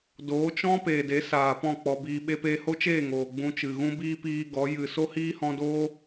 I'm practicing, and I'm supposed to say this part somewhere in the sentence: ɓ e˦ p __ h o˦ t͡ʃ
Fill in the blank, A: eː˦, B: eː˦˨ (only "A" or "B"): A